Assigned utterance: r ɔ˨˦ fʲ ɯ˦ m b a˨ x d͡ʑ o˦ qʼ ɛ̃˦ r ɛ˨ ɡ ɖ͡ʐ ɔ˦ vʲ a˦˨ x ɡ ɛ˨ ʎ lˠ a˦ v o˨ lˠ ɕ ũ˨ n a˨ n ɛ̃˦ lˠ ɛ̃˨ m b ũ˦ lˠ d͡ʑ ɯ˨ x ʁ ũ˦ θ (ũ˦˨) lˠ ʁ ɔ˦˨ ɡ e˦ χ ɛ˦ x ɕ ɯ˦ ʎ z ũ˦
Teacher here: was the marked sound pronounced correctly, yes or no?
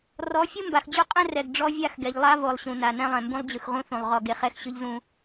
no